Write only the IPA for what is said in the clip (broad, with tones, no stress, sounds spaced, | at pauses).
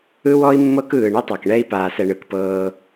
ɯ˦ w ɔ˦ i̯ mː ɤ˦ k ɯː˨ ɳ i˦ tˤ ɤ˨ k ɳ ɛ˦ i̯ p aː˨ s ɛ˨ ɳ ɯ˨ k p ɤː˦